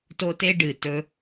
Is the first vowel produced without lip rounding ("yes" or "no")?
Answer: no